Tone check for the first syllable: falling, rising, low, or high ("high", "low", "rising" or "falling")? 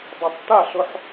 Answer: low